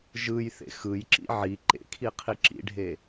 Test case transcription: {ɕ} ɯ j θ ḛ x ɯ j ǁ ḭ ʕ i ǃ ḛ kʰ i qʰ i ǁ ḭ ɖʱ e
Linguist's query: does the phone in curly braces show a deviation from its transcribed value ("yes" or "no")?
yes